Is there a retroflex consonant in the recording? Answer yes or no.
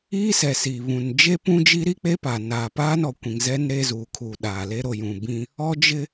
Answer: no